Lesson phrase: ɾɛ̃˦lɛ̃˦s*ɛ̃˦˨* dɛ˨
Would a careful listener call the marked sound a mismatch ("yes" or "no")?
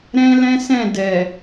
no